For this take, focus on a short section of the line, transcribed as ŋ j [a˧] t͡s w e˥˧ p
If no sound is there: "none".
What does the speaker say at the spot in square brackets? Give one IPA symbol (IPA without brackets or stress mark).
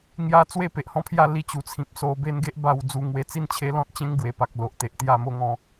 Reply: a˧